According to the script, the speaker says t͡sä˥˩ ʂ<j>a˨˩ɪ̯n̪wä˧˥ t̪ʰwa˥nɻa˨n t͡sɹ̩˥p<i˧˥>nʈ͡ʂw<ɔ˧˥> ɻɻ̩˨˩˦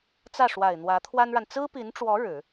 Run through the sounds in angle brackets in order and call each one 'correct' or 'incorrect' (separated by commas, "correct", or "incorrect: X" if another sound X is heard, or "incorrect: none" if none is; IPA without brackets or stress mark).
incorrect: w, correct, correct